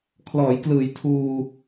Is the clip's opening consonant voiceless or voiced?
voiceless